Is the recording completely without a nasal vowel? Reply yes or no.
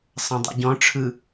no